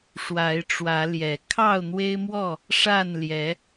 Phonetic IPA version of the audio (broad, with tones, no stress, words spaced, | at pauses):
ʂwa˨˦ɪ̯ʈ͡ʂwä˨˦ ljɛ˨˩ kʰɑ˥˨ʊ̯n̪we˦ɪ̯mwɔ˥˨ | ʂa˥˨nljɛ˨˦